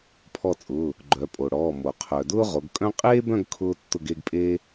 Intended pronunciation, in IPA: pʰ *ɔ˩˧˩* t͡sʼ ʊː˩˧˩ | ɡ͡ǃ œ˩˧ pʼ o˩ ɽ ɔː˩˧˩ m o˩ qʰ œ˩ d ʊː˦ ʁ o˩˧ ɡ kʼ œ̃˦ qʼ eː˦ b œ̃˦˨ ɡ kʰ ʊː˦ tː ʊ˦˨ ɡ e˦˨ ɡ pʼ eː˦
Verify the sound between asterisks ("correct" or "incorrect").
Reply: incorrect